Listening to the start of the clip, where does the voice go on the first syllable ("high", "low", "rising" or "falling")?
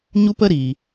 high